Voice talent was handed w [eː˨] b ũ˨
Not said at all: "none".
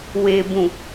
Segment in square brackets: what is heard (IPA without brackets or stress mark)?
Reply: eː˨